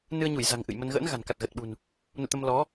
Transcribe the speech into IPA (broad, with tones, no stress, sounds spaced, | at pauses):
n ɨ˧ ə̯ ɲ u˧˩ j z a̤˨˩ ŋ ʔ ɨ̰˧˨ j m ə˧ n ɣ ə̰ː˧˥ n ɣ a̤˨˩ n k a˨˩ t̚ ɣ ə˨˩ t̚ ɓ ṳ˨˩ n | n ṵ˧˨ t̪ ə˧ m l ɔ˨˦